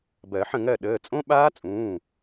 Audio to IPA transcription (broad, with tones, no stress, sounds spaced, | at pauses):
b ɜ˨˩˦ ħ ə̃˥˩ ŋ ɜ˥˩ ɗ əː˩˧˩ t͡sʼ õ˦˥ ɓ aː˦˥ t͡sʼ ũː˩˧˩